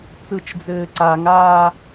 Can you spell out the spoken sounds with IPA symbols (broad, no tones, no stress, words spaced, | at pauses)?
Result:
t͡sɯt͡ʃd͡zɘː ǀaŋaː